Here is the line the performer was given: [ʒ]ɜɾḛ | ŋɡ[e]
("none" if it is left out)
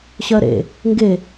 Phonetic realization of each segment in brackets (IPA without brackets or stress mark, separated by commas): ɕ, e